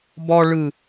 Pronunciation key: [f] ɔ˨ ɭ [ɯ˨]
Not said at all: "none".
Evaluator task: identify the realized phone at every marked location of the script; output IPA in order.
b, ɯ˨

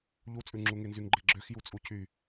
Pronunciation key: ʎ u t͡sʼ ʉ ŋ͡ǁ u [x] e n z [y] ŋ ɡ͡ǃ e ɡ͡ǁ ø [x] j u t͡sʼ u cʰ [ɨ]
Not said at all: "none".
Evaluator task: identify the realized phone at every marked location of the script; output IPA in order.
ŋ, y, x, y

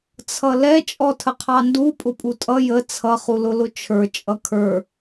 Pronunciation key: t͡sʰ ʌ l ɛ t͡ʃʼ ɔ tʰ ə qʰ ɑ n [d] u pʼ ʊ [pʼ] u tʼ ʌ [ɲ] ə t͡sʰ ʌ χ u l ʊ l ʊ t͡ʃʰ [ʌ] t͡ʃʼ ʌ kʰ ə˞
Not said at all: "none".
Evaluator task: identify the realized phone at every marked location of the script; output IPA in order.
d, pʼ, j, ə˞

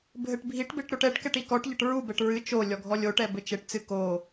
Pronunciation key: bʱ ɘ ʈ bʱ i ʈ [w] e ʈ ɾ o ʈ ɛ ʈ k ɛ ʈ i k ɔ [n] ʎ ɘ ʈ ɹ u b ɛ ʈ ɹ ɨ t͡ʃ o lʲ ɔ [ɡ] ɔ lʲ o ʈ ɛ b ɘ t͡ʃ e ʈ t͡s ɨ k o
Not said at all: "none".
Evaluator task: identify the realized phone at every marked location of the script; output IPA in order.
b, ʈ, ɡʱ

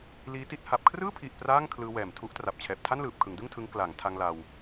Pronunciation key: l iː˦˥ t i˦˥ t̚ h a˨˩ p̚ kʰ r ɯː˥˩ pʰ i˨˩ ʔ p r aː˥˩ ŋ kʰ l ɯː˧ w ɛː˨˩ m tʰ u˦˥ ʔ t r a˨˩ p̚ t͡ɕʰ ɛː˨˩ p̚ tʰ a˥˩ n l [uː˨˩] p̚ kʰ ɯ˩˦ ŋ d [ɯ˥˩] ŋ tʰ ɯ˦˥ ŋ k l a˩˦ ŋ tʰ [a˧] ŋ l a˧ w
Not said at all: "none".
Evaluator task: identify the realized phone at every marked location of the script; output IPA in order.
ɯː˨˩, ɯ˥˩, a˧

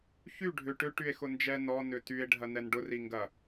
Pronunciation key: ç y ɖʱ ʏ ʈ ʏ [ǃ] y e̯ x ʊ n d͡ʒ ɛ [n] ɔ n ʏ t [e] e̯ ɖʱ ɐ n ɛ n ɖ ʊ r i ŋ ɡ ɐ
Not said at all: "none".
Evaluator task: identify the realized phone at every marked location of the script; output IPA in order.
ʈ, n, y

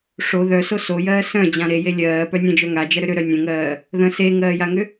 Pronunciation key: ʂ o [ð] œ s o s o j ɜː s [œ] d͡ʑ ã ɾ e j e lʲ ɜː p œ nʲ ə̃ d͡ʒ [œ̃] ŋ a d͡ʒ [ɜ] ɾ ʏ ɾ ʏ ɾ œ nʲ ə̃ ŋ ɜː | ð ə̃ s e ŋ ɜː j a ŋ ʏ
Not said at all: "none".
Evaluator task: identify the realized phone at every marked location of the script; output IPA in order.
ð, œ̃, œ, ɜ

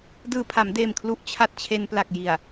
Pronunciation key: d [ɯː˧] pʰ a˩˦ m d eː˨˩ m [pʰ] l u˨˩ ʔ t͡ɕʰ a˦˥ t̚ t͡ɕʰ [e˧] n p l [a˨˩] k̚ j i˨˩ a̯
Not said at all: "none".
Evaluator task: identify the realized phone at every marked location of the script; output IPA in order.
ɯː˨˩, kʰ, e˧, a˨˩

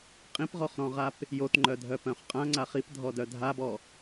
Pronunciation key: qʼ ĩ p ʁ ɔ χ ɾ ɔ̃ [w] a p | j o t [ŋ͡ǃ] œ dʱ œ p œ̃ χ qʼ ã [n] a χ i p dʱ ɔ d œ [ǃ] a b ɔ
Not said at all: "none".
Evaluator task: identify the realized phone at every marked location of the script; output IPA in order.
ʁ, ŋ͡ǃ, ŋ͡ǀ, dʱ

